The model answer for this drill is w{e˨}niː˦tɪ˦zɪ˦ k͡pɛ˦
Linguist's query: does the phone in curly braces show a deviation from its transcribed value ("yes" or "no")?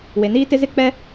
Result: no